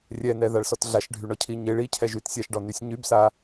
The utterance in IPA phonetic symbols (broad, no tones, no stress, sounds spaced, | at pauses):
rʲ ɛ n ɛ ð a ɭ s ɔ t ɮ a ʃ ɖʱ y ɳ ɔ cʰ i ɲ e ɭ i cʰ ɛ ʒ y t sʲ a ʃ ɖ ɔ n y sʲ ɲ y b s a